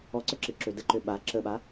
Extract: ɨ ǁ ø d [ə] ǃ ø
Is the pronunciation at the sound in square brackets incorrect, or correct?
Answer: correct